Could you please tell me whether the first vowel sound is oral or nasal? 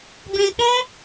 nasal